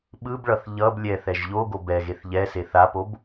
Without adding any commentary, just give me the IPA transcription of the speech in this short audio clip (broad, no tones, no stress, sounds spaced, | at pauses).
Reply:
ɓ ɯ b ɭ ʌ θ ʎ ʌ b lʲ ɛ θ ɛ ʒ ʎ o ɡ o b ɛ ɣ e θ ʎ ɛ s e θ a p o b